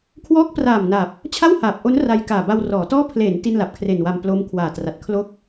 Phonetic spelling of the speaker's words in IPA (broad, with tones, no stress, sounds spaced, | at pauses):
kʰ w ɔː˦˥ k̚ p r aː˨˩ m n a˨˩ p̚ | t͡ɕʰ a˥˩ w h aː˨˩ p̚ ʔ o˦˥ n r a˧ j k aː˨˩ b a˧ w r ɔː˩˦ t ɔː˥˩ pʰ l e˩˦ n t i˥˩ n l a˨˩ p̚ kʰ r e˨˩ n w a˧ m p l o˦˥ m kʰ w aː˨˩ t r a˨˩ t̚ kʰ l o˥˩ k̚